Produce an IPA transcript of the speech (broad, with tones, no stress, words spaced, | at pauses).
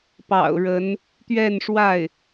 pɑ̰˨˩ʊ̯ɻə˧˥n | t̪ɥɛ˥˧nʂwa˥˩ɪ̯